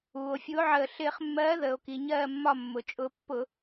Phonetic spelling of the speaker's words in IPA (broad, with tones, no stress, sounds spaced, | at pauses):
uː˩ o̯ fʲ u˨˥ o̯ ʕ əː˧˩ ɬ ɪː˧˩˧ χ mː ɜː˨˥ ð əː˩ o̯ k i˩ ɲ ɜː˧˩ mː ɒ˧˩ mː ʊ˩ t͡ʃʼ ʊ˧˩˧ pː ʊ˧˩˧